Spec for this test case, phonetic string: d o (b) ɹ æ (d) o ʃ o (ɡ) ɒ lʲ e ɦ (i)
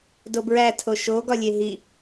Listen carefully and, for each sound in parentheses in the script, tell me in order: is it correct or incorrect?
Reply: correct, incorrect, correct, correct

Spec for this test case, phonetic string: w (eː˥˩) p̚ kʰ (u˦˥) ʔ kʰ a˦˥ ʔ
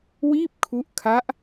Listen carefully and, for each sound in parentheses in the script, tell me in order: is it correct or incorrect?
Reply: incorrect, correct

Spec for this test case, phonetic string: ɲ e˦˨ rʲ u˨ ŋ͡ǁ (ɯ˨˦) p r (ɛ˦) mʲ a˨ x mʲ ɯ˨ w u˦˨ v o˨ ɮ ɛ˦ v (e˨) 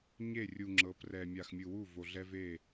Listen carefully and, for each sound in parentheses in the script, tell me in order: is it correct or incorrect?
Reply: incorrect, incorrect, incorrect

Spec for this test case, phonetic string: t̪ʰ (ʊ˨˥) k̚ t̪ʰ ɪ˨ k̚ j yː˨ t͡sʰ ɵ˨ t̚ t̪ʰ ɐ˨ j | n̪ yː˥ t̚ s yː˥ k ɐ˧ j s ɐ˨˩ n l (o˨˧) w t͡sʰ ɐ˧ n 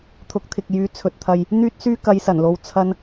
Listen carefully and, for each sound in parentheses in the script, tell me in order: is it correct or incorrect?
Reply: correct, correct

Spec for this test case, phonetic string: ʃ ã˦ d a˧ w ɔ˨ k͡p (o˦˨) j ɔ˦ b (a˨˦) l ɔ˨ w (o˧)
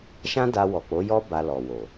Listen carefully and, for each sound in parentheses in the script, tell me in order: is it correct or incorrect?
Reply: incorrect, incorrect, incorrect

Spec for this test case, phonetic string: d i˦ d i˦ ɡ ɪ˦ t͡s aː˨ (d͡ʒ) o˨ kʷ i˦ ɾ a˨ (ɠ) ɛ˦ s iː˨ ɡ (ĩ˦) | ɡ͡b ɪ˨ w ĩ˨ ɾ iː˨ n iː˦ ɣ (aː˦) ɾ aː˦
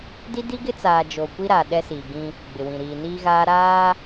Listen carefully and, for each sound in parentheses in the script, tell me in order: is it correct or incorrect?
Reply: correct, incorrect, correct, correct

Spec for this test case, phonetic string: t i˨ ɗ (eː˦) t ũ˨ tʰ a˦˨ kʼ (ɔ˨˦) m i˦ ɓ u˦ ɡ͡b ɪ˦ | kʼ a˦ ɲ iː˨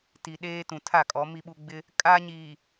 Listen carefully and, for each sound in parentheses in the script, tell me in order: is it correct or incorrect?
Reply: correct, correct

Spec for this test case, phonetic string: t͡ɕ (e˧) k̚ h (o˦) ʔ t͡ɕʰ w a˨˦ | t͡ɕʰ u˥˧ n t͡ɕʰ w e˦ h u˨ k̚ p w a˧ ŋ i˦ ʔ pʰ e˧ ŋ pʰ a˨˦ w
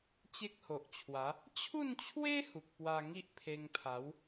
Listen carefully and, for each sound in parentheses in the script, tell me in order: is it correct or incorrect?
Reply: incorrect, incorrect

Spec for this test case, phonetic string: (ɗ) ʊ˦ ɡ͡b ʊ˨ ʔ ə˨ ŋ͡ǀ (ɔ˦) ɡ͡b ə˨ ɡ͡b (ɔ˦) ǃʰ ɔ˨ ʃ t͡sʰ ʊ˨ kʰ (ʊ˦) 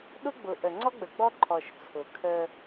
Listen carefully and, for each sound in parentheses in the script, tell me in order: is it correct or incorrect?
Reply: correct, correct, correct, incorrect

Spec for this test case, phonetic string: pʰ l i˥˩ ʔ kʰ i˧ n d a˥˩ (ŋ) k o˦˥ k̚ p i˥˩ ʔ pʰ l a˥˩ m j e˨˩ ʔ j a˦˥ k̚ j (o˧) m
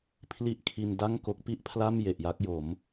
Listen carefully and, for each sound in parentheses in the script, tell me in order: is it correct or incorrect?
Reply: correct, incorrect

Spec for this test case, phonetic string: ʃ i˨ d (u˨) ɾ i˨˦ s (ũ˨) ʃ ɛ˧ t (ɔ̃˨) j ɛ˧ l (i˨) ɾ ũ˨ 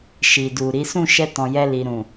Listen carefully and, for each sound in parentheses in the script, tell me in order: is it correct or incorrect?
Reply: correct, incorrect, correct, correct

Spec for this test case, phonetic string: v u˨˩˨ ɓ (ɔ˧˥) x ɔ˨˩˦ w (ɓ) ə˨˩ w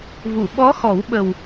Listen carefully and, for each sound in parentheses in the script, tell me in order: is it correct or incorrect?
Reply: correct, correct

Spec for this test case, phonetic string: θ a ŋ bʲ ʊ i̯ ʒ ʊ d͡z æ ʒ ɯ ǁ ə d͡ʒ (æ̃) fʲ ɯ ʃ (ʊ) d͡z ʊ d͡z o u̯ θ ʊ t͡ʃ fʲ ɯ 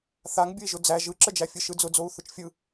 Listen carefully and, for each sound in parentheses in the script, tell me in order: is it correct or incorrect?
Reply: incorrect, incorrect

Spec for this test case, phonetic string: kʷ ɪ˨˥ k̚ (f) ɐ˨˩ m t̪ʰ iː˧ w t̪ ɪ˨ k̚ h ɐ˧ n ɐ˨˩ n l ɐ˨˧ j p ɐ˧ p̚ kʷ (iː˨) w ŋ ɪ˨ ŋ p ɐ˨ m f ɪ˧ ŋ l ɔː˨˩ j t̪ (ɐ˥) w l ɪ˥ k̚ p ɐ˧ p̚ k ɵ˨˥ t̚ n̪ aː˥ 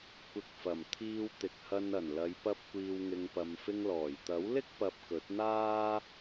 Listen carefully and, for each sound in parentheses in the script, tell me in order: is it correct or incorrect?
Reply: correct, correct, incorrect

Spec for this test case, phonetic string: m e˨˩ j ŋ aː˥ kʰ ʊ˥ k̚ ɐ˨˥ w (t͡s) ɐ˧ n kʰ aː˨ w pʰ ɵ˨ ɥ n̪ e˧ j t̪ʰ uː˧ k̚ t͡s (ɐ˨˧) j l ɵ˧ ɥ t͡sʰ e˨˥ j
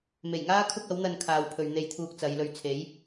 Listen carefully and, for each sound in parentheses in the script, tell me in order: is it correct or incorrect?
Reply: incorrect, correct

